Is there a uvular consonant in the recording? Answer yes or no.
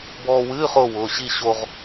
yes